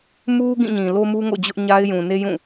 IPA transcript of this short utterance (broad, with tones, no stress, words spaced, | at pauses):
mu˦ ɡĩ˦˨ɲĩ˨ lo˦mu˦ ŋo̰˦˨d͡ʑʊ˦ʔɲa˦ɪ̯ jũ˨ne˦jũ˦˨